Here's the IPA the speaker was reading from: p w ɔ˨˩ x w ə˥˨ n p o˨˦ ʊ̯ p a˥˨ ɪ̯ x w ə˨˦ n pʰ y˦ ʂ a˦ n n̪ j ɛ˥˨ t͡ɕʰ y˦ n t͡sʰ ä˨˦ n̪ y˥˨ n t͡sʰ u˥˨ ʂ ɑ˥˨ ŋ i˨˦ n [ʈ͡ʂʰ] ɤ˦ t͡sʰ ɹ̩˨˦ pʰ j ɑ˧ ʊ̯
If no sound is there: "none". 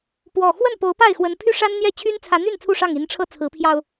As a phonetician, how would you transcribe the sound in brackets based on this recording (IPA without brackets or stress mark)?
ʈ͡ʂʰ